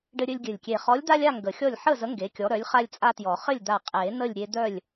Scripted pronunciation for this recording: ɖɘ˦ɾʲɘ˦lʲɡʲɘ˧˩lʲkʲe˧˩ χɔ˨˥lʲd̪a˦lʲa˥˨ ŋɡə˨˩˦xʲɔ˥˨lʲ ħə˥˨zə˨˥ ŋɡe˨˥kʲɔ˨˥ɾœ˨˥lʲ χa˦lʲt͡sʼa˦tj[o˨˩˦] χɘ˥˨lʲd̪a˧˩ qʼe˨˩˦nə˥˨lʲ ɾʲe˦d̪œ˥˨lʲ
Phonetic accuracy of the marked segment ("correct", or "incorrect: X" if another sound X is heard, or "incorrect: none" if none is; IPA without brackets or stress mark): incorrect: ɔ˨˩˦